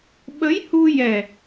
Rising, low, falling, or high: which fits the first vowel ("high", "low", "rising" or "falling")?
rising